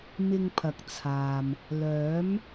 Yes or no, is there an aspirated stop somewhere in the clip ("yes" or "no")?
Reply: yes